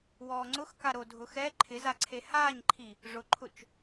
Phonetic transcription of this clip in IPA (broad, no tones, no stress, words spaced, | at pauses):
wɔːŋ͡ǀʊxka ɾodʱʊxɛ ǃʰɪzaǀʰe haːɲǃʰi | ʐʊǃʰʊt͡ʃ